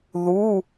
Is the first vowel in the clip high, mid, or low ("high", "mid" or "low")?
high